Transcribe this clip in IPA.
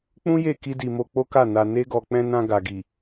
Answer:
k͡pũ˦je˦˨ ki˧di˨ mo˧k͡po˦ka˦˨ na˧ne˦ɡɔ˧ k͡pɛ̃˧nã˧ ɡa˨ɡi˨

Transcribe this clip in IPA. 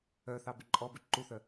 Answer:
œθɑ bʉǃʼɔbʉ ǃuθœ

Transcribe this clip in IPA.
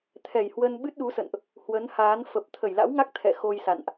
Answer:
t̪ʰɛ˨˩jhwə˧n ɓɨ˦˥t̚ɗu˨˦sə̰˧˨nʔ | hwə˨˦nhaː˨˦n fə˨˩p̚ t̪ʰə˧˩jla̰˧˥wŋa˦˥k̚ t̪ʰɛ̰˧˨ xo˧jsa̰˧˨nʔ

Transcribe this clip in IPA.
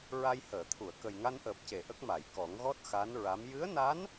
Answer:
ɹa˧jhəː˨˩˨t̪ʰu˨˩˨ə̯ kə˨˩jŋa˧nʔəː˨˩p̚ce˨˩˨ ʔə˦˥k̚ma˨˩˨j kɔ˨˩˦ŋɣɔ˦˥t̚ xa˧˥nɹa˧˥m jɨ˧˥ə̯na˧˥n

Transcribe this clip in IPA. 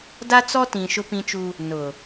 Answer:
da˦t͡sɔ˦tĩ˨ ʃʊ˦pĩ˦t͡ʃu˦ | nʊ˨

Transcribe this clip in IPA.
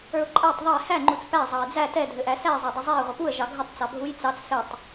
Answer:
ə˞ʊ̯ǃʼætˤ ðˤɛ hæ ŋ͡ǃut͡spæ zˤɑɪ̯d͡zæ tɛ dʱɘʔæsæ zˤædˤɘzˤæə̯ ʁʷəpuə̯ ʒɑɡʱɘtˤ t͡sɑbʱuj t͡sɑt͡s sɘtˤ

